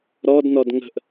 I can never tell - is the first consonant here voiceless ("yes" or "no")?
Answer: no